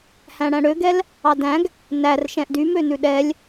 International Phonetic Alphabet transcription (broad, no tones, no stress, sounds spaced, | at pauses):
h æ̃ ɽ æ̃ ɽ ø ɡ ɛ l | ɑ d æ̃ ɡ | n æ r ʃ ɛ̃ ʔ d y m ø n ʉ ɗ ɛ lʲ